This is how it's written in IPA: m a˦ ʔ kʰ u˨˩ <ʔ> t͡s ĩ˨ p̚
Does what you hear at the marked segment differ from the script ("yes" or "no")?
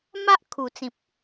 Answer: yes